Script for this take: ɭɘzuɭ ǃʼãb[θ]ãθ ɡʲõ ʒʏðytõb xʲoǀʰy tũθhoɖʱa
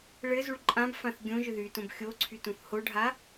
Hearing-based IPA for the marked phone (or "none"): f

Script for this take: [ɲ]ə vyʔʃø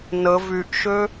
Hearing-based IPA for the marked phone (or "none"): n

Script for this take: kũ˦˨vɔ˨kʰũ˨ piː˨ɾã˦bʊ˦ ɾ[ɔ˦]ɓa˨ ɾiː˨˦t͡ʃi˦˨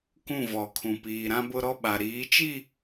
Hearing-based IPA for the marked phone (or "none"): ɔ˦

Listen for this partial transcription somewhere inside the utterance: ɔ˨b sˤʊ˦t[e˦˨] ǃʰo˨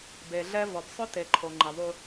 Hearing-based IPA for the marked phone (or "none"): e˨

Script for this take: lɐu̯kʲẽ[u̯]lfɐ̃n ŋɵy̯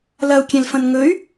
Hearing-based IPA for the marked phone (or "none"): none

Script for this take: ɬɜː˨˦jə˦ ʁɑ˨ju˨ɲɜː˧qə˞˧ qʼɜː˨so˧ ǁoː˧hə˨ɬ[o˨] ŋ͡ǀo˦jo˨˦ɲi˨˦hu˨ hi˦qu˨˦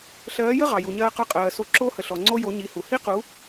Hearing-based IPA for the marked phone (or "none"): ɔ˨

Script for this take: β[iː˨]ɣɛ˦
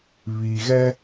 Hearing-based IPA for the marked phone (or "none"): iː˨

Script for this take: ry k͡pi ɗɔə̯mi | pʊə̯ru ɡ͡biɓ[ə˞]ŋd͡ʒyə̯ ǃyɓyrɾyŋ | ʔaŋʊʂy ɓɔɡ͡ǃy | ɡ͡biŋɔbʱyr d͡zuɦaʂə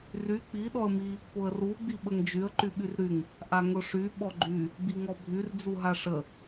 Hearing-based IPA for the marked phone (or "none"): ə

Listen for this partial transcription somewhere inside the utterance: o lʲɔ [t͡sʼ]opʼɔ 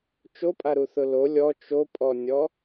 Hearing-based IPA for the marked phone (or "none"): t͡ʃ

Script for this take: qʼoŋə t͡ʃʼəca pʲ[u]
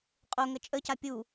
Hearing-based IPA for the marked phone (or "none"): u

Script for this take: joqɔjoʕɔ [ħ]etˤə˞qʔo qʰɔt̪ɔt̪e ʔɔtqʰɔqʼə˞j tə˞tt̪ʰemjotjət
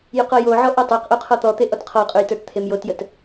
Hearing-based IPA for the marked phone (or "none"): ʔ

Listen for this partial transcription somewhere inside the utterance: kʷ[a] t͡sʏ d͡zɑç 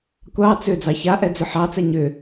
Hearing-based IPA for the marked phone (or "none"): ɑ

